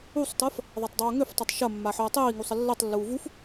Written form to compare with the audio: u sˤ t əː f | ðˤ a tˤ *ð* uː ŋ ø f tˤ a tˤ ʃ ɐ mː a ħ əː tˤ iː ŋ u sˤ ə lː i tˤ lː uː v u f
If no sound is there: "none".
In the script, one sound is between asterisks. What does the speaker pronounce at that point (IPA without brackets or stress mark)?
dˤ